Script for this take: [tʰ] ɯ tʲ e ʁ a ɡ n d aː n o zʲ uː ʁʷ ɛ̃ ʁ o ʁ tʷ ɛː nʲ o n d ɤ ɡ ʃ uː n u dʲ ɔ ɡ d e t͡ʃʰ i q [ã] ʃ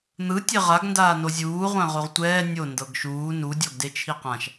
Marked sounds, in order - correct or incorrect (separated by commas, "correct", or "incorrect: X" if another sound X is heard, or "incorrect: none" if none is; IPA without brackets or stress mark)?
incorrect: n̪, correct